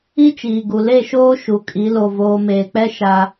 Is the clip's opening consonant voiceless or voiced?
voiceless